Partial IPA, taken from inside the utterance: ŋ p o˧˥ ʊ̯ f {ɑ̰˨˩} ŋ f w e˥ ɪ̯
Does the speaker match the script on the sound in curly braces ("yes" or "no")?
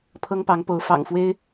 yes